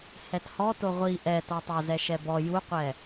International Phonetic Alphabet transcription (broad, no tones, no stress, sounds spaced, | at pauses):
h ɛ t h ɔ t o ʁʷ i ʔ ɛ t ɔ tˤ o z ɛ ʃ ɛ b ɔ j u qʷ ɛ